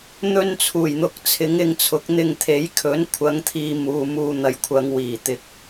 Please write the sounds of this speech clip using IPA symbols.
n̪ ɵ˧ n t͡sʰ uː˨˩ j n̪ ʊ˨ k̚ t͡sʰ ɪ˨˥ ŋ ɪ˧ ŋ t͡sʰ ʊ˨˥ k̚ n̪ ɪ˧ ŋ t̪ʰ e˨˥ j kʰ ɵ˨˥ n kʷʰ ɐ˨˧ ŋ t̪ʰ iː˨ m uː˨ m uː˧ n̪ ɐ˨ j kʷʰ ɐ˨˧ ŋ w iː˨˩ t̪ ɪ˨ k̚

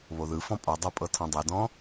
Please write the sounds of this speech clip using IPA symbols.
β o ð ɯ f ɔ̃ pʼ ɔ dˤ o pʼ ɤ tʰ ɔ̃ dˤ e d ɔ̃

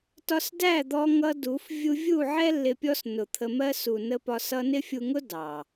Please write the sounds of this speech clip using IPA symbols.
t ɒ˧ s d æ˦˨ d̪ ɔ˧ ŋ ʌ˧ d u˨˦ f vʲ u˧ vʲ u˦˨ ʕ ɛ˦ lː ɪ˧ pʲ ɔ˦ s n ʊ˨ t̪ʰ ə˧ m ɜ˦ s u˨ n ə˧ p ɒ˧ s ʌ˧ n ɪ˦ fʲ u˧ ŋ ʊ˦ d ɑ˨

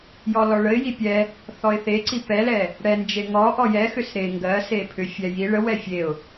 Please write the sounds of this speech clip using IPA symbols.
j ɔ l ɔ ɭ ə ɪ̯ j i pʲ ɛ | θ ɔ ɪ̯ θ e ǀ i p ɛ l ɛ | ɽ ɛ n d͡ʒ e ŋ ɔ ʔ ɔ j ɛ x ʏ s ɾ e ŋ ɡ ɜ s e pʰ ʏ fʲ ɛ j i ɭ ə w ɛ fʲ e ʊ̯

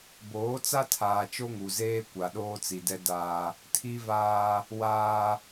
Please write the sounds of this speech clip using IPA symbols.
b oː˨˦ t͡s a˦ tʰ aː˨ t͡ʃ o˦ ŋ u˨ z eː˦ kʷ a˨ ɗ oː˦ t͡s i˨ d ɛ˦ d aː˦ | tʰ i˦ v aː˦ | w aː˦

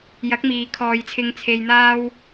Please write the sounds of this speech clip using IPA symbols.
j ɐ˨˥ k̚ m iː˨ kʰ ɔː˨˧ j t͡sʰ ɪ˧ ŋ t͡sʰ e˧ j n̪ aː˥ w

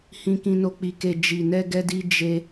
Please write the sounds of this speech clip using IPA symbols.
h ĩ˧ k ĩ˧ n o˧ k͡p i˧ k e˧ d͡ʒ i˨ n ɛ˧ ɡ ɛ˧ d i˧ d͡ʒ e˧

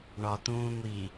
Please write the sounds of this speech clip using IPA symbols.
ɳ ɒ t̪ ũː ŋʷ i

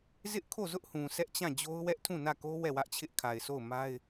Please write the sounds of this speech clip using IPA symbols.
z ɪ˦ ʔ kʰ o˦˨ z ʊ˦ ʔ h ũ˨ sʰ ɛ˦ ʔ t͡ɕ ã˦˨ d͡ʑ o˦ ʊ̯ w ɛ˦ ʔ tʰ ũ˦˨ n ä˦˨ k o˦ w ɛ˦˨ w ä˦ ʔ t͡ɕʰ ɪ˦ ʔ kʰ a˨ ɪ̯ sʰ o˦˨ ʊ̯ m a˦ ɪ̯

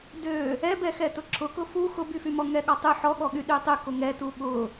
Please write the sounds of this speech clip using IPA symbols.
d ø | ɛ b ɛ x ɛ t ʊ ǁʰ ʊ k ʊ f u x ʊ b y f y m ɔ ŋ ɛ ɠ ɔ tˤ y ħ ɔ ɠ ɔ ɠ y ɗ y tˤ y k ʊ ŋ ɛ t u ɠ ʊ

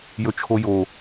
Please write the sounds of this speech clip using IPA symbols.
j ɵ t͡ʃʰ o j o

